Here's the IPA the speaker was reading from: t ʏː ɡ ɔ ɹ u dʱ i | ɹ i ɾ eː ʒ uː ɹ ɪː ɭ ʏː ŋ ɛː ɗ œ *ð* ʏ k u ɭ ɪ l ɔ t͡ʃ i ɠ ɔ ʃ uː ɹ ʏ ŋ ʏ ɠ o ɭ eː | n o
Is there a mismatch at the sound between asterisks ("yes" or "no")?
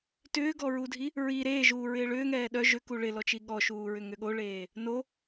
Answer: yes